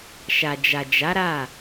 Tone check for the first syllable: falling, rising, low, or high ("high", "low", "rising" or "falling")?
low